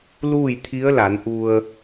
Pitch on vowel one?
falling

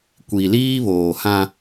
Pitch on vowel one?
low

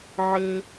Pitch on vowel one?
high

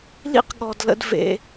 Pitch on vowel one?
high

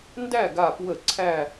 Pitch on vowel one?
falling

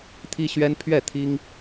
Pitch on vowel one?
high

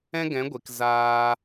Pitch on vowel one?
high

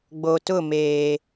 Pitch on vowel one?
low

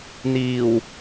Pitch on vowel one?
low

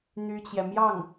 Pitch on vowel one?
high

